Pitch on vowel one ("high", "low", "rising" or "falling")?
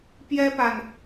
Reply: high